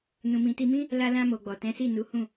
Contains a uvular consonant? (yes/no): no